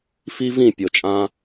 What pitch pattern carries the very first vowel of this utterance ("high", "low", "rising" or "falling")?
high